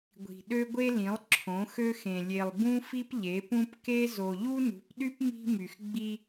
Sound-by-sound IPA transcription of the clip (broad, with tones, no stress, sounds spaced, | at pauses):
ɡʷ i̤˨ ɗ ø˦ ɡʷ e˦ l ĩ˨˦ lˠ ǁʰ õ˨˦ x ø˦ x ẽ˨ lʲ e˨ lˠ b ũ˦ f i˦ p ʎ e˨˦ p ũ˦ p k e˦ z o˨ ʎ u˦ n ṳ˨˦ p ɗ y˦ p m i̤˦ m y˨ x ɡ͡b i˦